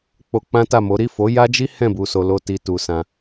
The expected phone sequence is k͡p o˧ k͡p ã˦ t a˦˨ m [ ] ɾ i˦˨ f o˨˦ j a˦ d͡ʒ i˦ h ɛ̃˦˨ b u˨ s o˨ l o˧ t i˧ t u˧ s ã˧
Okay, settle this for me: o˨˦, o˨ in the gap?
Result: o˨˦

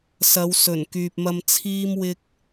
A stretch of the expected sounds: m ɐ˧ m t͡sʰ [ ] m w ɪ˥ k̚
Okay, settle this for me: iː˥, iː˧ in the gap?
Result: iː˥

